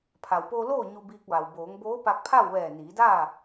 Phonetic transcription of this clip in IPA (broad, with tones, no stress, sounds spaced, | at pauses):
pʰ a˩ w p oː˧ l oː˥˨ ɲ u˧ b iː˧ k̚ ʋ a˩ w b oː˩˧ ŋ b oː˧˥ p a˧ k̚ pʰ a˥˨ w ʋ ɛː˧˩ n iː˩˧ d aː˥˨